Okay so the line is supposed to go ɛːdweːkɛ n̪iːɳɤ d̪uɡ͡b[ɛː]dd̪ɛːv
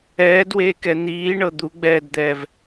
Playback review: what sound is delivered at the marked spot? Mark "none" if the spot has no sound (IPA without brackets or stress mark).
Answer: ɛː